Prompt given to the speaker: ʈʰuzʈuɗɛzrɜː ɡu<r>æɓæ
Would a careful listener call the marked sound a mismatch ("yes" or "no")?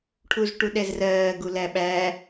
yes